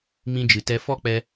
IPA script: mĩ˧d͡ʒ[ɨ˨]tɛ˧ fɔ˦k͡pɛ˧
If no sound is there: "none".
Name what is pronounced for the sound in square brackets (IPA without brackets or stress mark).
ɨ˨